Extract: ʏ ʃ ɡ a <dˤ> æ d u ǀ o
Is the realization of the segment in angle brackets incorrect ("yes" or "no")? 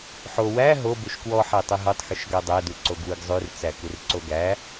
no